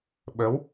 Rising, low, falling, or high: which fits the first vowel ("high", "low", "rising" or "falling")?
rising